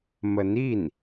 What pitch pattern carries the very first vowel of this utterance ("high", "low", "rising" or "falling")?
rising